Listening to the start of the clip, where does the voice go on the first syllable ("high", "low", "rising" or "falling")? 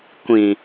low